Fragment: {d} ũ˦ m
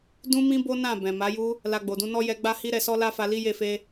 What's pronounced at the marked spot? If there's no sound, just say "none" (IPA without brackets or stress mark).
d